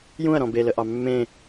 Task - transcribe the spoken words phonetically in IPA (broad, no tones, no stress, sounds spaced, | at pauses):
j ũ ɐ̯ ɾ ɔ̃ b e l ə ʔ ɑ mː ẽ